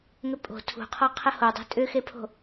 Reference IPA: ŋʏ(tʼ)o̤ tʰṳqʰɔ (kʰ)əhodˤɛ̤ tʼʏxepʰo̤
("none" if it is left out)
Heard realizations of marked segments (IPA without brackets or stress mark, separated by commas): pʼ, qʰ